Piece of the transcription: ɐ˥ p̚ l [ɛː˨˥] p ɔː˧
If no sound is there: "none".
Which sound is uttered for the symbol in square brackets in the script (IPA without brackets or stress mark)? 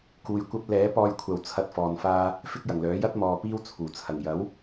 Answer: ɛː˨˥